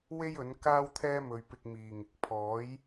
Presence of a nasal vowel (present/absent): absent